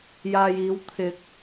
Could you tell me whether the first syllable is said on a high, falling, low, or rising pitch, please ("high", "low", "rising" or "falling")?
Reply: low